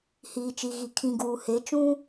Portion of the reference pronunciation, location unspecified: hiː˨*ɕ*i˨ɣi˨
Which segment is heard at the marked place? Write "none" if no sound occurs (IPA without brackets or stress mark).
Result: t͡ʃ